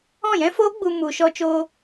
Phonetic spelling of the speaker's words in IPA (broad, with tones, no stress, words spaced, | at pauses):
ɔ̃˦˨jɛ̃˦foː˦ɡ͡bu˧ mu˧ ʃɔ˧t͡ʃoː˧